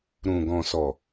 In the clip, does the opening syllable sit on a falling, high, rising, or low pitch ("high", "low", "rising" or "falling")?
low